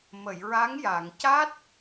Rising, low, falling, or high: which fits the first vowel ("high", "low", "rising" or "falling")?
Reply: low